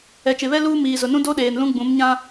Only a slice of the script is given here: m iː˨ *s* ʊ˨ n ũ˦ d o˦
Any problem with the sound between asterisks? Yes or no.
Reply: yes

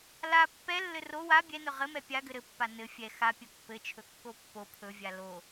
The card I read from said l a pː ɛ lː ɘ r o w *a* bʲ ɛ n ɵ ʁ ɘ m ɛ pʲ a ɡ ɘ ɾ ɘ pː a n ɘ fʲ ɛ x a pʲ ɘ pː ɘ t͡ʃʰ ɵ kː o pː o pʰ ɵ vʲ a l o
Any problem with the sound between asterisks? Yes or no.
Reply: no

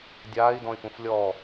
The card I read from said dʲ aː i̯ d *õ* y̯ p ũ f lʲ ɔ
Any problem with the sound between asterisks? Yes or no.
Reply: yes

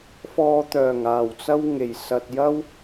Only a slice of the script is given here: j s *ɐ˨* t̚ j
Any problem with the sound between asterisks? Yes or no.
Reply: no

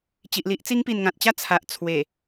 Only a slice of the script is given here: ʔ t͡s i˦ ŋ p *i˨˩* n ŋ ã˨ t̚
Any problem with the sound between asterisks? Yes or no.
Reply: no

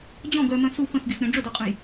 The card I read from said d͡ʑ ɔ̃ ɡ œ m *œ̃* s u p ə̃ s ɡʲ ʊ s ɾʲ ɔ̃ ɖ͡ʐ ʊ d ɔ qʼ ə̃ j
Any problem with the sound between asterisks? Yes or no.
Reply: no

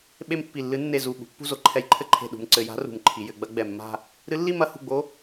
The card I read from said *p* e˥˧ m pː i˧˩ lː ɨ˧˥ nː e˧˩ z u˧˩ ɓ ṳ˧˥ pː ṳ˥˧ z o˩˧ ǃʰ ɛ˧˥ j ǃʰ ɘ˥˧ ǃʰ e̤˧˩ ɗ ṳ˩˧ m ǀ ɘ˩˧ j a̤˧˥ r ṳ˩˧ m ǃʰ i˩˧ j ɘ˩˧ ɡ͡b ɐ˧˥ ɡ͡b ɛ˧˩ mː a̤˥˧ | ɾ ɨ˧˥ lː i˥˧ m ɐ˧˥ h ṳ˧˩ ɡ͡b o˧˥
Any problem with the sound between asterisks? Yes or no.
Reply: yes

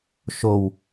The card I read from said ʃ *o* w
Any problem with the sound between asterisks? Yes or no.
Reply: no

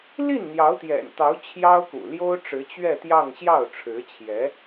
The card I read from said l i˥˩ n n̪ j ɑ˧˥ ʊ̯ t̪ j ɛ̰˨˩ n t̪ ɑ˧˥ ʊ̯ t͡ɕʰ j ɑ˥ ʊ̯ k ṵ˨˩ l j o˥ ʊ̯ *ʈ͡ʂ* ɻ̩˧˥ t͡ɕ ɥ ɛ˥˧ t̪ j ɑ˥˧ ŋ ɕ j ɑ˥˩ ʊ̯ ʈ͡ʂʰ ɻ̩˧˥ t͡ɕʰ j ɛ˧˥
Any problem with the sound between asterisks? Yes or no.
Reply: no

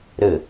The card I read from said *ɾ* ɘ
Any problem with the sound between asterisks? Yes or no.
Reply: no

